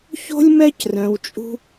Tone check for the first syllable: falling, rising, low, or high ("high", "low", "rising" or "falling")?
high